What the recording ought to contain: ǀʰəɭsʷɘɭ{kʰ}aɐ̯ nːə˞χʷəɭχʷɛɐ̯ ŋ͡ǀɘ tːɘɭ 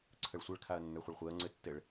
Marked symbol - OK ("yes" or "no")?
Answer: yes